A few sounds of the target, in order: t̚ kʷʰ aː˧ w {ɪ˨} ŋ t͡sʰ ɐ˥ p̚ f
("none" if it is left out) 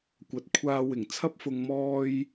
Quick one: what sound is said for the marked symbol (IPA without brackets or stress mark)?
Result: ɪ˨˩